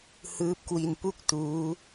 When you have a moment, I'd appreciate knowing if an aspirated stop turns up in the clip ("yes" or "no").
no